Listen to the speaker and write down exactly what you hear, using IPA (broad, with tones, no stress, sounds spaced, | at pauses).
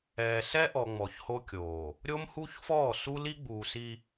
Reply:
ɛː˨ s ɛ˦ ʔ ɔ˨ ŋ͡m ɔ˨ ç h o˦ kʲ oː˨ | ɾʲ o˦ m h u˦ ç f ɔː˦˨ s u˦ l i˦ ɡ͡b uː˨ s i˦